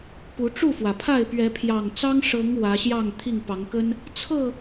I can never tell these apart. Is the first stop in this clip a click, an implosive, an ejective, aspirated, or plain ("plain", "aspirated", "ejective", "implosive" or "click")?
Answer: plain